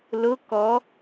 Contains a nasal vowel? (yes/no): no